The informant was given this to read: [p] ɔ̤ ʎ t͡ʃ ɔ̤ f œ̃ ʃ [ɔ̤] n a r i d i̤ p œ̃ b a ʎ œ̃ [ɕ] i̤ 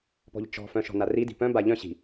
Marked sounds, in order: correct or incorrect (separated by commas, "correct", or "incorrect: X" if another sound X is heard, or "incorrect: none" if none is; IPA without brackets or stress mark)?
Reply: correct, correct, correct